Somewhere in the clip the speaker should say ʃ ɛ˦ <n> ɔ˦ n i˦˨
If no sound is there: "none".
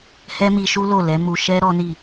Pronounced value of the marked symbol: ɾ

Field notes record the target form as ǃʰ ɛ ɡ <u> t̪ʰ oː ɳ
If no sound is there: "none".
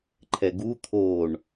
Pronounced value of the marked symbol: u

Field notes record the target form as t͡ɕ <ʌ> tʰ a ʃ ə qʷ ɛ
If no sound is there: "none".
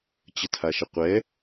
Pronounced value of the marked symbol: ə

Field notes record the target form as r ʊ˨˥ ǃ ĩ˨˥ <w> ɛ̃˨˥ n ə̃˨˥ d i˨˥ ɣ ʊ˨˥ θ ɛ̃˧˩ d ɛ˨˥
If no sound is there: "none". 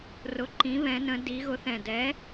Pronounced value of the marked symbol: β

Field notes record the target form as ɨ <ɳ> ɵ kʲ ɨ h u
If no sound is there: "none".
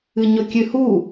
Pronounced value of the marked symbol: ɲ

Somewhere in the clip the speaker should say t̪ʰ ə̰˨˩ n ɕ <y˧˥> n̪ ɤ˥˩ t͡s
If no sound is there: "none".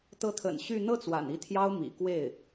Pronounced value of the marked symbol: y˥˧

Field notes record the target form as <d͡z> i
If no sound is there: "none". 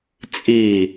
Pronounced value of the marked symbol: t͡sʼ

